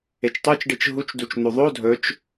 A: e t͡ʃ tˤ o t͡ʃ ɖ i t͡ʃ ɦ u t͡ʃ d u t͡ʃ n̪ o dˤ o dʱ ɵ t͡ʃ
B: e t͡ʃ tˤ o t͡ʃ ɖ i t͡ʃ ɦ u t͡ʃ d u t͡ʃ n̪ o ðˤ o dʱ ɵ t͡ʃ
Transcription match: B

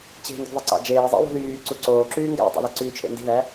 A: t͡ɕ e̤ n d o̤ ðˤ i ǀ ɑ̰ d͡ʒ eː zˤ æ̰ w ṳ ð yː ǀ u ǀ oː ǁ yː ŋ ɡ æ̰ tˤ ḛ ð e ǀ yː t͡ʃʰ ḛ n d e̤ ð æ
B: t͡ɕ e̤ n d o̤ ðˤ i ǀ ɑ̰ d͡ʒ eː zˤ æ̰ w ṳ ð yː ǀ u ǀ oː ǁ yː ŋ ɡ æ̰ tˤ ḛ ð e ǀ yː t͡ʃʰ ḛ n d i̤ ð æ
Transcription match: B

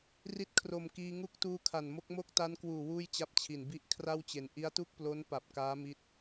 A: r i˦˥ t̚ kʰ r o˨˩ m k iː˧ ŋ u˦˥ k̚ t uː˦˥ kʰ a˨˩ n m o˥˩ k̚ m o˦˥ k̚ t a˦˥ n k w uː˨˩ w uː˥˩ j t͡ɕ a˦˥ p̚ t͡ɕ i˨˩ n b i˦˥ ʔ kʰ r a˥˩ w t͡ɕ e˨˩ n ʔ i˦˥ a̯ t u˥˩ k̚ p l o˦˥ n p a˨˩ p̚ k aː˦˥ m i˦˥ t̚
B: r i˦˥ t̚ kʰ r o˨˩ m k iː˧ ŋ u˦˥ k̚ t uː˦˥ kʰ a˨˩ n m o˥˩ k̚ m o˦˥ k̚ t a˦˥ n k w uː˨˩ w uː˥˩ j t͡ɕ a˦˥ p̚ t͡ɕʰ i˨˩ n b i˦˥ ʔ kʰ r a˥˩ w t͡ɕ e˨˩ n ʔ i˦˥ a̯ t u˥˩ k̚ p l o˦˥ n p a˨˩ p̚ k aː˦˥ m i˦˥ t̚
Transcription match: B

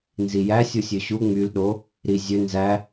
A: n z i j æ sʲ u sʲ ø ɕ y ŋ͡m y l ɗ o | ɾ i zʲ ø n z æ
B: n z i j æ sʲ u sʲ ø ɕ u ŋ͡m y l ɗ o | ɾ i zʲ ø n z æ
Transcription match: B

